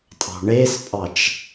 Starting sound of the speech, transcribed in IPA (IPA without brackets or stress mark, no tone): tʼ